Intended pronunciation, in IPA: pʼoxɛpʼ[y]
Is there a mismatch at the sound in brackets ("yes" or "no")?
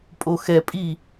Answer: yes